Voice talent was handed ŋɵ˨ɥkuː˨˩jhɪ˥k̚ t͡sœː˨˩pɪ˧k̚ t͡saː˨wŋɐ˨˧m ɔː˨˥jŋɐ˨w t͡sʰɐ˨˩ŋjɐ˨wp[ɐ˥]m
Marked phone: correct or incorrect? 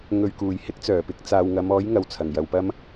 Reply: correct